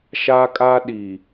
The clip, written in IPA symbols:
ʃ a˦ kʼ a˦ ɗ i˨

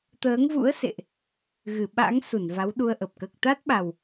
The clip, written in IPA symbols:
t̪ əː˨˦ ŋ v ṵ˧˥ ə̯ s ḛ˧˨ ʔ | ɣ ɨ˧˩ ɓ a̰˧˥ ŋ s u˧˩ n v a˨˦ w ɗ u˧ ə̯ ʔ ə˨˩ p̚ k əː˨˩ k̚ t̪ a˦˥ t̚ ɓ a˨˩ w

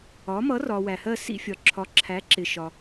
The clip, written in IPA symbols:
ɒ˨˥ m ʌ˨˥ r ɒ˨ w æ˨ h ɜ˥˧ s ḭ˥˧ fʲ ɒ˨ ǁʰ ɒ˨˥ ǁʰ æ˨˥ ǁ ɪ˨ ʃ ɒ˨

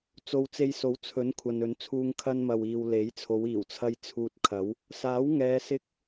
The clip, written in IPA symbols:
t͡s o˧ w t͡s e˧ j s o˨˥ w t͡sʰ ɵ˨˥ n kʷʰ ɐ˨ n ɵ˨˧ n t͡sʰ uː˧ ŋ kʰ ɐ˧ n m ɐ˨ w iː˨ w l e˨˥ j t͡sʰ o˨˧ w iː˨˩ w t͡sʰ ɐ˧ j t͡sʰ uː˧ t̚ kʰ ɐ˨˥ w | s aː˨˥ w ŋ ɛː˨˧ s ɪ˧ k̚

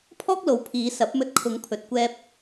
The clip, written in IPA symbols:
pʰ ɔː˥ k̚ l o˨ w pʰ iː˨˧ s ɐ˨˥ p̚ m ɵ˧ t̚ kʰ ʊ˨˧ ŋ pʰ ɵ˨ t̚ kʷ ɛː˧ p̚

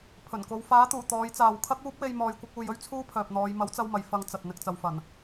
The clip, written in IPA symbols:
pʰ ɵ˨˩ n k o˨˧ w f aː˨˥ t̪ uː˨˩ t̪ ɔː˨˧ j t͡s aː˨ w kʰ ɐ˥ k̚ uː˥ p̚ w e˧ j m ɔː˨ j kʷ ɐ˧ k̚ uː˨ j ɵ˥ ɥ t͡sʰ uː˥ pʰ œː˨ p̚ n̪ ɔː˨˧ j m ɐ˨˥ w t͡s ɐ˧ w m ɐ˨ j f ɐ˧ ŋ t͡s ɐ˨ t̚ n̪ ɪ˨ k̚ t͡s ɐ˨ w f ɐ˨˩ n

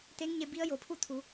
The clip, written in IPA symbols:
t̪ e˧˥ ŋ ɲ e˧ b i˧˥ ə̯ j o˩ pʰ u˥˨ t̪ʰ u˩˧

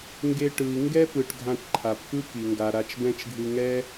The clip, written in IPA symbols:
ŋ ɡ e˧ ʈ ɯ˩ i̯ ŋ ɡ ɛ˥ p ɯ˩ ʈ ɡʱ ã˧ ʈ ǃʰ a˩ p k ɯ˥ k i˩ ŋ ɡ a˩ ɾ a˧ t͡ʃ b ɛ̃˥ t͡ʃ ɡʱ ɯ˧ ŋ ɛ˥

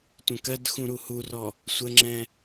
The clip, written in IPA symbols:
tʷ ə̃ k ɜ d x ũ ɾ u h u r ɔ | sʷ ə ŋ͡ǁ ɛ̃

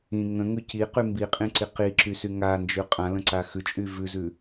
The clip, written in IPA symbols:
ĩ ŋ ə̃ ŋ ʉ c i q y m b i qʼ ĩ ǀ i q i ǁ y s y ŋ a n d͡ʒ ʉ qʼ ã l ə̃ ǀ a x ʉ t͡ʃʼ y v ʉ z ʉ

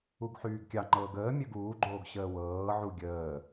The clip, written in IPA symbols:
u ɡ ħ yː ɡ kʲ ɑ ŋ͡ǃ ɤː ɡ əː mʲ ə ɡ uː ɡ͡ǃ oː ɡ ɕ əː w ɤː ʕ u ɡʲ əː

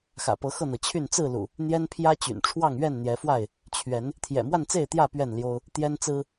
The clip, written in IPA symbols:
x ä̰˨˩ p ɤ˨˦ x ɤ˥˨ n̪ ɤ˩ t͡ɕʰ y˥˨ n t͡s ɹ̩˥˨ l ṵ˨˩ | n̪ j ɛ˦ n pʰ j ä˦ t͡ɕ y̰˨˩ n ʈ͡ʂʰ w ɑ˥˨ ŋ ɥ ɛ˥˨ n n̪ j ɛ˨˦ f w a˥˨ ɪ̯ | t͡ɕʰ ɥ ɛ˨˦ n | t̪ʰ j ɛ̰˨˩ m w a˥˨ n t͡s e˥˨ ɪ̯ t̪ j ä˥˨ p ɥ ɛ˥˨ n l j o˦ ʊ̯ | t̪ j ɛ˦ n t͡s ɹ̩˦

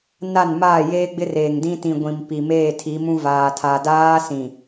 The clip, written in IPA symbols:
n a˦˨ n m aː˦˨ j eː˦ ɡ͡b ɪ˦ r eː˨ ŋ d ĩ˦ t ĩ˨ ɡʷ ĩ˨ m p i˨ m eː˦˨ tʰ i˨˦ m ũ˦ v aː˨ tʰ a˨ d aː˦ s ĩ˨

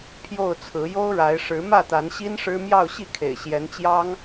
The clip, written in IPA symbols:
pʰ j o˥˨ ʊ̯ t͡sʰ ɹ̩˨˦ j o˦ ʊ̯ ɻ a˨˦ ɪ̯ ʂ ɻ̩˨˦ m ä˥˨ t̪ a˨˦ n ɕ i˦ n ʂ ɻ̩˦ m j ɑ˥˨ ʊ̯ ɕ i˥˨ kʰ ḛ˨˩ ɪ̯ ɕ j ɛ˨˦ n t͡ɕ j ɑ˦ ŋ

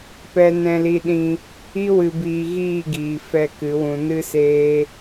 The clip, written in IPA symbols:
p ɛ˧ n ɛ̃˧ l i˧ ɗ ĩ˧ | i˦ w ɨ˧ b iː˧ ɣ iː˦˨ ɡ iː˨ f ɛ˦˨ k ɨ˨˦ w ũ˧ n ɨ˦ s eː˦

